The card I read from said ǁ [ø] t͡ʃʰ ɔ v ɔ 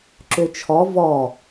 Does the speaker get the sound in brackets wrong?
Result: no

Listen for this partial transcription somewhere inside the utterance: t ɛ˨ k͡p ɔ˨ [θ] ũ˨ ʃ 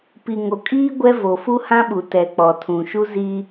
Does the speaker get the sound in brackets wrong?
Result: yes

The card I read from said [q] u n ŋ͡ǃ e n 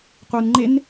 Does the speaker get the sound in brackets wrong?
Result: no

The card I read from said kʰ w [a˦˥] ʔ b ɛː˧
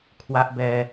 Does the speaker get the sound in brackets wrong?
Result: no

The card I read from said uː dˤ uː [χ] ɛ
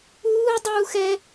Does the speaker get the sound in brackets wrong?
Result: yes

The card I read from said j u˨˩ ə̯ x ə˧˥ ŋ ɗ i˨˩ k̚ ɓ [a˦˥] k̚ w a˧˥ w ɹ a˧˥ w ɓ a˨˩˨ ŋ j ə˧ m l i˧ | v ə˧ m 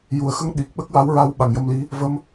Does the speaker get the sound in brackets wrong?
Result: yes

